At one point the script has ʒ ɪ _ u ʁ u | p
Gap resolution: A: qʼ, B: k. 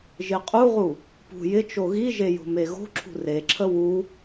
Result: A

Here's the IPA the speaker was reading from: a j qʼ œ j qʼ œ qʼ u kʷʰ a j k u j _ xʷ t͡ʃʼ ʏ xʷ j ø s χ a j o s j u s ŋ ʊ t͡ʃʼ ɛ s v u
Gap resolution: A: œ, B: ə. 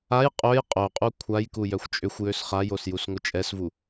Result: A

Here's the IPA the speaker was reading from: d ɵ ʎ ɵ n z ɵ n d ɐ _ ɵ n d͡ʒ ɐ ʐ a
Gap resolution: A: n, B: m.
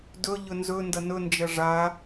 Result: A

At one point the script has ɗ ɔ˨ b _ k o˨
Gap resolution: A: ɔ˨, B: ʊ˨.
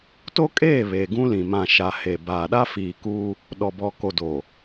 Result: A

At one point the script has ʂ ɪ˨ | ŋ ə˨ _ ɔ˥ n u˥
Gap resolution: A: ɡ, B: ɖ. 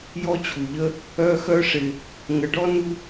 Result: B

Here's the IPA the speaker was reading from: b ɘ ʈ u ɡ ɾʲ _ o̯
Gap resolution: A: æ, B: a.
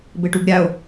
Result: B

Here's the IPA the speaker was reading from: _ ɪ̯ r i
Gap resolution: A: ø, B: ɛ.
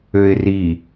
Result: A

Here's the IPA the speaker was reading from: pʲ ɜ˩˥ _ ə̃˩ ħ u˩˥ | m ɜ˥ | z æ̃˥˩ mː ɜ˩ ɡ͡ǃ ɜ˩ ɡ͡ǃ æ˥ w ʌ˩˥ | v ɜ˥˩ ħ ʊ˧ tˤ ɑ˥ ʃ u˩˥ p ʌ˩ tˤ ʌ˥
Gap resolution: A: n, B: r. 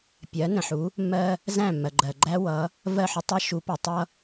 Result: A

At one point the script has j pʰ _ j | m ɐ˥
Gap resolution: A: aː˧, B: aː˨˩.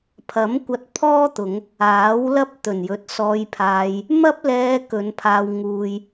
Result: A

